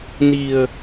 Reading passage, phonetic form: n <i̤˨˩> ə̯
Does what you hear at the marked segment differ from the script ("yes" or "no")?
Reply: no